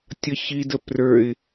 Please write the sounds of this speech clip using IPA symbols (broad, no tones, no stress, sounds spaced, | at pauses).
tʲ ʌ ç i d ə p r ə˞ ɪ̯